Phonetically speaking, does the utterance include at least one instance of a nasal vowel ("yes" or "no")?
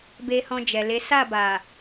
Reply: yes